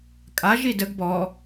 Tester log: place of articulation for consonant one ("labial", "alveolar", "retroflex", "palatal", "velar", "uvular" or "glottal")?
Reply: velar